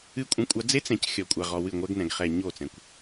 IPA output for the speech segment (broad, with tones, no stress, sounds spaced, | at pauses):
ɨ˦ kʷʼ ɐ̃˦ kʷʼ a˦ d͡z e˦ t͡s ɛ̃˨ c xʲ ɔ˨ kʷʼ a˨ ʁ ɔ˨ w ɨ˦˨ ŋʷ ɛ˦ ɡ n ɛ̃˨ ɡ χ ɛ˨ ɲ o˦˨ t͡s ɛ̃˨ kʷ